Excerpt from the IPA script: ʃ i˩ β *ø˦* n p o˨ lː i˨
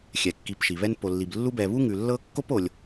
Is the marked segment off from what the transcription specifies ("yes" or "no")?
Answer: yes